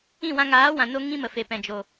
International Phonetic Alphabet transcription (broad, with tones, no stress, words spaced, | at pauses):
ĩ˦˨wã˧ŋaː˨˦wã˨ no˦ ŋĩ˦mə˨fe˨ pɛ̃˨d͡ʒo˨